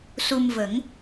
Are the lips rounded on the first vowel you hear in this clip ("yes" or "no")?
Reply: yes